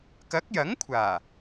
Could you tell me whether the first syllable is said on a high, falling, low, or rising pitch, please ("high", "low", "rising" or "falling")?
rising